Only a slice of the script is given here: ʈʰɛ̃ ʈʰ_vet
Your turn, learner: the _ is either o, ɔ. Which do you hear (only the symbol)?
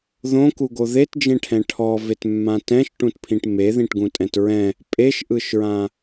ɔ